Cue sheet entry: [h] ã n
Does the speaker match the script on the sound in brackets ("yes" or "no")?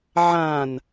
no